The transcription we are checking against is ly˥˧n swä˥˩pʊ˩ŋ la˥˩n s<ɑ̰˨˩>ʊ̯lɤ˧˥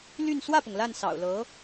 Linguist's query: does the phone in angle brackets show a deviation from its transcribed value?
no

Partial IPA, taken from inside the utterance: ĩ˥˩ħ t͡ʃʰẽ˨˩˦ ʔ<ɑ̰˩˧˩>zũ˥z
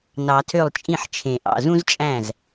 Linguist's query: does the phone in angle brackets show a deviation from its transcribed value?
no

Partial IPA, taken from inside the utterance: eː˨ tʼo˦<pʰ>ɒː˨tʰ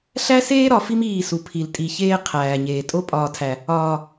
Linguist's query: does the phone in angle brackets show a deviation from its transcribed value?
yes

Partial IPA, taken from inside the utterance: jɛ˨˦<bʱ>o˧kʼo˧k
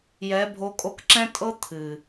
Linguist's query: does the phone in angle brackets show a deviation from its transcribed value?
no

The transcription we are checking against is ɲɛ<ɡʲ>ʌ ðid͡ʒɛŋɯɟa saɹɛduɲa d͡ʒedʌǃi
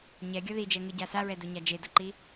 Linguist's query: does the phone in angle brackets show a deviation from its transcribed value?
no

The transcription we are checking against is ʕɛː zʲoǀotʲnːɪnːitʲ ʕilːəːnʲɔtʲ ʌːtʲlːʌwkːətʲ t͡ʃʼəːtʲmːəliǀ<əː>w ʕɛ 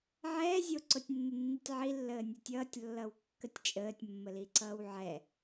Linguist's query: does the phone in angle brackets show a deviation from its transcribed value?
yes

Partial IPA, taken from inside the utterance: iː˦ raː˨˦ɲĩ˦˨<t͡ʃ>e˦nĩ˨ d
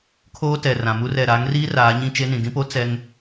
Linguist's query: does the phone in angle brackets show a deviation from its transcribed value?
no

